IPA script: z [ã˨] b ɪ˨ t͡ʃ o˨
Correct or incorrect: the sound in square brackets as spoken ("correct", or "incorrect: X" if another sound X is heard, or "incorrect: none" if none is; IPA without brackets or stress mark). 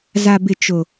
incorrect: a˨